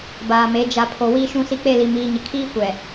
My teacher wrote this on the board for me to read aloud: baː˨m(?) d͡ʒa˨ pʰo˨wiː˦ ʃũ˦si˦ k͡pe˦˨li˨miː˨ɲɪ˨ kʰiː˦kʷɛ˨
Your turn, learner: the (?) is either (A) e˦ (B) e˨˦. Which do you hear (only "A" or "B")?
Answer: B